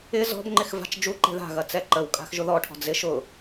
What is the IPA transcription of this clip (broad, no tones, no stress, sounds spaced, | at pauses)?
ɪ z ɔ̤ b ŋ͡ǃ ɪ x v a̤ t͡ʃ d͡ʒ u ǃ e̤ ð a̤ ɣ ɐ t͡s ɛ ǃ ə w kʼ a̤ x ʒ ʊ ð ɔ ʈʰ ɔ̤ d͡z ɪ ʃ ʊ